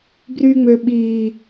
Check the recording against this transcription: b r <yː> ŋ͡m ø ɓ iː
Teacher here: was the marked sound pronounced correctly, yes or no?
yes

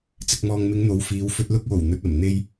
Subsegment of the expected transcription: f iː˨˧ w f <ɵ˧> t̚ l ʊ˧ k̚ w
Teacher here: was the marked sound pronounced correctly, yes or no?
yes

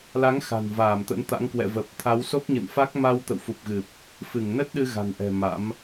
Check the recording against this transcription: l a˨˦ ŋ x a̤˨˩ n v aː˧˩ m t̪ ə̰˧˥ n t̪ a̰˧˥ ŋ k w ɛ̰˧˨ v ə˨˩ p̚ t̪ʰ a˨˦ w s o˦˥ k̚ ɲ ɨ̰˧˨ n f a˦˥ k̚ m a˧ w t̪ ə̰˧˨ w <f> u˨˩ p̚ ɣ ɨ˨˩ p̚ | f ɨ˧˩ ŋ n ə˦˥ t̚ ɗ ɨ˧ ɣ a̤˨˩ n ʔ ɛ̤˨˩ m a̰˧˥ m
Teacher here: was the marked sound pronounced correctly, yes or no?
yes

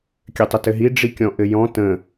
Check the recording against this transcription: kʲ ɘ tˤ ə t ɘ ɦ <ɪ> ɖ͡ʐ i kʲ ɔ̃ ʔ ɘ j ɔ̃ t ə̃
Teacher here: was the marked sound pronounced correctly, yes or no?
no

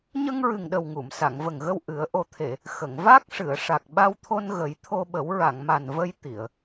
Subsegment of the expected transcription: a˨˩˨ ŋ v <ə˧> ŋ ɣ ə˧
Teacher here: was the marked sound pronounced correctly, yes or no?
no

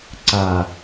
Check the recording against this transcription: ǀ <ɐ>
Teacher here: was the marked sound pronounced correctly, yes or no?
no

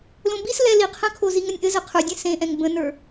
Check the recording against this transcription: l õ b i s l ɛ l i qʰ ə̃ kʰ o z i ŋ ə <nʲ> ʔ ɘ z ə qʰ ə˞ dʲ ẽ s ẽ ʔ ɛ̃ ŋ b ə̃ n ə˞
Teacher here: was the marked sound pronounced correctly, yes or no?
yes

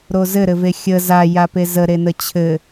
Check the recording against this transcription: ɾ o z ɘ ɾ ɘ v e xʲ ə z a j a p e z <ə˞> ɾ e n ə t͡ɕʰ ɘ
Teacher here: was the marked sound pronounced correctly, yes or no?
no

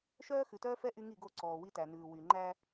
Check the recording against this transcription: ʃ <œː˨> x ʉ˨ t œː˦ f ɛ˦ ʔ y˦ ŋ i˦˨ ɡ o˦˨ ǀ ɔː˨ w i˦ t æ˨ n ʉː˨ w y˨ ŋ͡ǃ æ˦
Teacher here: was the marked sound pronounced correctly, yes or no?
no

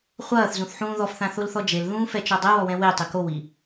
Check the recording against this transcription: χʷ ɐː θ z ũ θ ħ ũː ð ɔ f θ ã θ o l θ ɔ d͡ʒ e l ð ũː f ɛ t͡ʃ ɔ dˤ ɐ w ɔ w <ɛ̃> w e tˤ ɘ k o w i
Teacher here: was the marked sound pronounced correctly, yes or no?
yes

